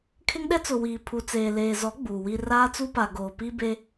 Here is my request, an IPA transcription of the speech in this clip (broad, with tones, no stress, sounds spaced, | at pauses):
kʰ ɪ˦ ŋ ɗ ɛ˦ t͡s ʊ˨ w iː˨ pʰ u˨ t͡s eː˨ l eː˨ z ɔ˨˦ ɡ͡b uː˨ w i˦ r aː˦ t͡s u˦ p a˨ ɡ oː˨ p i˦ b e˦